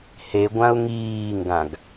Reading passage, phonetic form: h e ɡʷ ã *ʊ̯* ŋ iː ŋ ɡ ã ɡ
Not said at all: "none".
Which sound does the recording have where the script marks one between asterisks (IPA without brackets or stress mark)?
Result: ʊ̯